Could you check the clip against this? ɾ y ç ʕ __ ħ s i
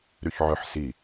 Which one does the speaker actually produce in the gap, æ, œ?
œ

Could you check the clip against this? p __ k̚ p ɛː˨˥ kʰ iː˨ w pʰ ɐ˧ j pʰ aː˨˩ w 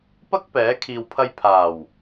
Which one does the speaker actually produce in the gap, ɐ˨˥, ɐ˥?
ɐ˥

